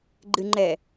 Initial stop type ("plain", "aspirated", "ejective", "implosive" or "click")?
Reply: click